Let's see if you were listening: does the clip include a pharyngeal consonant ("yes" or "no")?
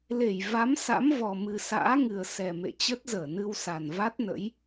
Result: no